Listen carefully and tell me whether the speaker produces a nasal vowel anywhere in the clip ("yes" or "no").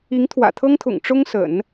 no